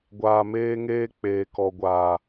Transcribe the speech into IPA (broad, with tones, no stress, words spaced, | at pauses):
ɡʷaː˧meː˦ŋeː˦ k͡peː˨kɔ˨ɡʷaː˨